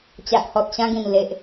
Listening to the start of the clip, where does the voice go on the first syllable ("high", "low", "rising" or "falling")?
low